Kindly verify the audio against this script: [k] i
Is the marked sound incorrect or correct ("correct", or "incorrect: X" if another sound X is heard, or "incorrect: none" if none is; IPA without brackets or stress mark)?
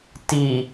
incorrect: t